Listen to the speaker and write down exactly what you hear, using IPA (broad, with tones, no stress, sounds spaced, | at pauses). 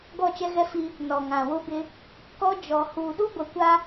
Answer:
ɡ ɔ˦˨ t͡ʃ ɛ˦ ɣ ɛ˦ f i˦ | n ɔ˨ ŋ ã˨ w ʊ˦ b ɪ˦ | k ɔ˦ d͡ʒ ɔ˨ h uː˨ ɗ u˦ ɡʷ ɛ˨ kʷ a˦